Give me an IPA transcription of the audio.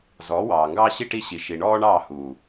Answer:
z ɔː˨˦ w ɑː˨ ŋ ɡ ɑː˦ ɕ i˦ ʈ i˦ ɕ i˨ ʃ i˨ ɳ ɔː˦ ɳ ɑː˦˨ h uː˨

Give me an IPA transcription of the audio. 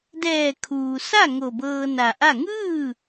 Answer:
d ɛː˧˩ kʰ uː˩ s a˥˨ ŋ o˧˩ b ɤː˧ n a˧˩ ʔ a˥˨ ŋ ɯː˥˨

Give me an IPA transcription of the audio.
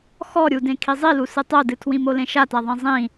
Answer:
x ɔ ɾʲ u d ẽ kʰ i zˤ i l u s ɨ tˤ o d ɨ tʰ w ĩ m o l ẽ ʃ a t a ðˤ ẽ zˤ ĩ

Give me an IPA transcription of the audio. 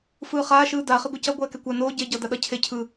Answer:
f ɯː χ aː ʃ ɯː d a χ e ɡʷ ɛ c ʌ ɡʷ ɛː k ɛ kʷ a n oː ɟ e ɟ ʌː d a ɗ ʌ cʰ e cʰ ɯ

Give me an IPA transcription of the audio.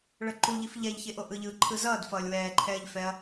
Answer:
ɭ ʌ ǃ u ʎ i f ʎ ɛ ʎ ç e ʔ o ʔ ɯ ʎ ɯː ǃʰ ɯ z ʌː d f ʌː lʲ w ɛː ǃʰ ɛː ʎ f ɛ ɐ̯

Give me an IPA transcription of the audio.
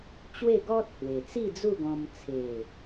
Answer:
t͡ɕ w e˥˧ ɡ ɔ˦ t̚ h w e˨˩ t͡s i˥˧ d͡z u˥˧ ɡ ɔ̃˧ m t͡sʰ e˨˩

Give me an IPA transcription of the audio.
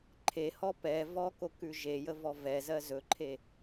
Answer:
ǃʰ e h ɔ p ɛ v ɔ k o k ʉ ʒ e j ə v ɔ v ɛ z ɜ z ɵ ǃʰ e

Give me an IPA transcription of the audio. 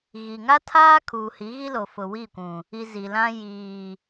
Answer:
ɣ i˨ ŋ a˦ tʰ aː˦ kʰ uː˨ h i˨˦ ɣ i˦ l o˨ f ʊ˨ w i˦˨ kʷ ũ˨ | i˨ z i˨ l ã˦ j iː˨

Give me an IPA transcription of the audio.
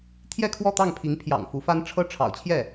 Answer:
t̪ʰ j ɛ˥˧ kʰ w ɔ˥˧ t̪ ɑ˥˩ ŋ pʰ i˧˥ ŋ pʰ j ɑ̰˨˩ ŋ f u˧˥ f a˥ n ʈ͡ʂʰ ɤ˥ ʈ͡ʂʰ ɑ̰˨˩ ʊ̯ t͡ɕʰ j ɛ˥˩

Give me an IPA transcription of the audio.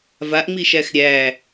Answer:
v a ʔ ŋ͡m i ʃ æ x ɾʲ æ

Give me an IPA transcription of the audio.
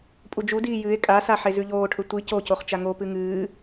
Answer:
pʼ u d͡ʒ u d iː j ɨ e̯ kʼ a s a ħ e z ʉ ʎ oː ʈʰ ɵ tʷ i c o c o χ t͡ʃ a ŋ o p ɨ ŋ ɨː

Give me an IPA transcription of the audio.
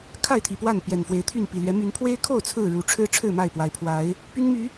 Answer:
kʰ a˥˨ ɪ̯ t̪ʰ i˨˩ p w a˥˨ n p j ɛ˨˩ n f w e˨˦ ɪ̯ t̪ʰ y˥˨ n p i˨˩ l ɥ ɛ˨˦ m y˨˦ n pʰ w e˦ ɪ̯ kʰ o˥˨ ʊ̯ t͡sʰ ɹ̩˥˨ ɻ u˨˦ ʈ͡ʂʰ ɻ̩˦ ʈ͡ʂʰ ɻ̩˥˨ m a˥˨ ɪ̯ p w a˨˩ ɪ̯ pʰ w a˨˦ ɪ̯ | p y˦ n m y˨˦

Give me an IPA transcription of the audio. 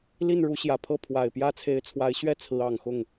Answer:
l i˥˩ n ɻ u˧˥ ɕ j ä˨˩ pʰ ɤ˥˩ pʰ w a˨˩ ɪ̯ p j ä˥ t͡sʰ e˧˥ ɪ̯ t͡sʰ w a˧˥ ɪ̯ ɕ ɥ ɛ˥ t͡sʰ ɹ̩˧˥ ɑ˨˩ ŋ x ʊ˥˩ ŋ

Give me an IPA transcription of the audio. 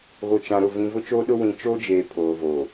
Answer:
ɣ o˨ t͡ʃ ã˨ ɾ ʊ˦˨ v ĩ˨ v ʊ˦ t͡ʃ oː˦ ɗ ʊ˦ w ĩ˨ t͡ʃ oː˦ d͡ʒ eː˨ pʰ oː˨ v oː˨

